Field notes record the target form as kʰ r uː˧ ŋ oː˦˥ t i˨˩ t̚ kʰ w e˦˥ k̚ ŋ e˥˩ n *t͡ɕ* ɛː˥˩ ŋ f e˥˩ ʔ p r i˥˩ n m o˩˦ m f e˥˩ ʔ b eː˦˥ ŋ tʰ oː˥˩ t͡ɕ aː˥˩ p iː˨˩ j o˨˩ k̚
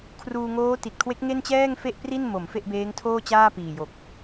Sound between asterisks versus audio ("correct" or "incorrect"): correct